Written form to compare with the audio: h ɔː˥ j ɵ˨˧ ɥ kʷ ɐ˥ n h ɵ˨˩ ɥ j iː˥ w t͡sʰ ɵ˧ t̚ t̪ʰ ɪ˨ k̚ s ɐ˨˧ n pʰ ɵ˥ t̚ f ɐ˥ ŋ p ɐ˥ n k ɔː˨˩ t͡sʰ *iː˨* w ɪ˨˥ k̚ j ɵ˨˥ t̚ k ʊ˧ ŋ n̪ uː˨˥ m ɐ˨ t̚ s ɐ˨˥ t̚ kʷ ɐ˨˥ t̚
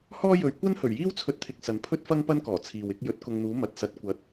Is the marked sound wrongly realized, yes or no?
no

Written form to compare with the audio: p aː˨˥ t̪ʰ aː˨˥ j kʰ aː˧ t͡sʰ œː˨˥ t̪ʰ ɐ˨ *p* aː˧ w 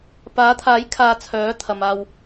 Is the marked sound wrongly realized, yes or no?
yes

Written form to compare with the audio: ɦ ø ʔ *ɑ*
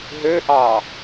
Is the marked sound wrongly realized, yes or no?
no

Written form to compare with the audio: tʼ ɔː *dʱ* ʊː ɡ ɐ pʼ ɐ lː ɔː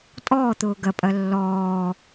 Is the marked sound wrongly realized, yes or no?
yes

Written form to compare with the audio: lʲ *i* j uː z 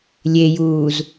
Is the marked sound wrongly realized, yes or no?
yes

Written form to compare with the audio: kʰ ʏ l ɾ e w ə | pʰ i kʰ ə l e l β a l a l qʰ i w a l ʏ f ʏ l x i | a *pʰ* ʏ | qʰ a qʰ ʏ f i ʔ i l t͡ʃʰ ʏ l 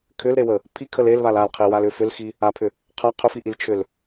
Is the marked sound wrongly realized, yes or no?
no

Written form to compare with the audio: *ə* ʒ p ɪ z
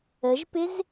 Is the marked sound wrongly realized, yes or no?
no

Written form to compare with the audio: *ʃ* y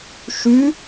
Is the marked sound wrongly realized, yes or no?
no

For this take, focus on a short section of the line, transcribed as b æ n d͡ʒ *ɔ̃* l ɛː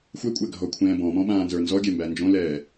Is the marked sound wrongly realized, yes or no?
yes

